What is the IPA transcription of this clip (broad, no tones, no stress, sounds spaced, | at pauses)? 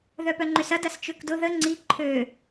ð œ p œ ŋ͡ǃ ʏ s ɐ d ɐ s t͡ʃ ø k d ʊ ð ə ŋ͡ǀ i ǃʰ ø